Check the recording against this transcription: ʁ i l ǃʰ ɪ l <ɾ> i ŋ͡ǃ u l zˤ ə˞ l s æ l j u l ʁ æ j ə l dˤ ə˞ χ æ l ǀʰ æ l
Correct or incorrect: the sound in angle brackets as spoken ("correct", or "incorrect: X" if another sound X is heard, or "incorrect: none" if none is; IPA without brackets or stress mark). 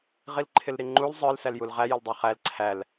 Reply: correct